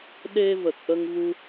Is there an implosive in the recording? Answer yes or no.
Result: yes